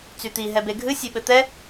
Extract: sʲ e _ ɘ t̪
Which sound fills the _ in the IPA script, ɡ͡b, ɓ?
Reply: ɓ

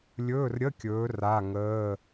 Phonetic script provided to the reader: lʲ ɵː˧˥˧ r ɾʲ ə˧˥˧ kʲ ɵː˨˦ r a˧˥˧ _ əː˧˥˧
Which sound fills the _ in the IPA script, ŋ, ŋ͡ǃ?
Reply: ŋ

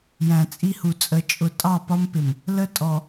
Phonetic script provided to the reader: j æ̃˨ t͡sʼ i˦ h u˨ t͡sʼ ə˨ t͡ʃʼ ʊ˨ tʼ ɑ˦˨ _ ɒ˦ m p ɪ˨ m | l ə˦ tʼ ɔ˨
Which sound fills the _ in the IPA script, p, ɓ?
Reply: p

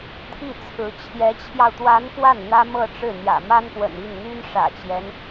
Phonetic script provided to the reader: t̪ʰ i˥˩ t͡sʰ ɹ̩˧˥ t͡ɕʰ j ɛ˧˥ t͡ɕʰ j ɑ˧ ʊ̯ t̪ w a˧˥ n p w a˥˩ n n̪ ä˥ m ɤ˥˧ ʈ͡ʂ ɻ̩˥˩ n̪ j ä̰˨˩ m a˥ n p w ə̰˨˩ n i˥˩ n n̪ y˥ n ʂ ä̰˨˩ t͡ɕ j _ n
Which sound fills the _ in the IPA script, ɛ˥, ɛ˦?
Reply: ɛ˦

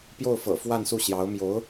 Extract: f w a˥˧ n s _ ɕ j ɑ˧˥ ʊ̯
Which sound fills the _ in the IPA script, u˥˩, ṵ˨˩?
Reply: u˥˩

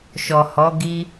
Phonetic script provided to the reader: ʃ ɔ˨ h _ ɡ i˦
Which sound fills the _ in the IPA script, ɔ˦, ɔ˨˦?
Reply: ɔ˨˦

